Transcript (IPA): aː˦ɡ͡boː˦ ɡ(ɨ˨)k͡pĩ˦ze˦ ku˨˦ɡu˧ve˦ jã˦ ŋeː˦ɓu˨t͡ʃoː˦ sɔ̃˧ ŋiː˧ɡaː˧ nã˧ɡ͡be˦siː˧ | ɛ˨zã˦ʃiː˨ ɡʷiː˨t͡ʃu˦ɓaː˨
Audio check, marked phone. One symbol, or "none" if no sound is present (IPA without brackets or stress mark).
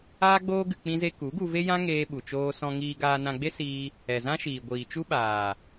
ɨ˧